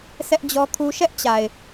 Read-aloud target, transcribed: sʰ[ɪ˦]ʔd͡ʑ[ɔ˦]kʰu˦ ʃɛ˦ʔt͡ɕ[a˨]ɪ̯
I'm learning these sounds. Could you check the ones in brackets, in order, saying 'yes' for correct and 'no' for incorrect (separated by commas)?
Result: no, yes, yes